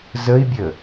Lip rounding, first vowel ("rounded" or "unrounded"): unrounded